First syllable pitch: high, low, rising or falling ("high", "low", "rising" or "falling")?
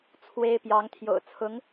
high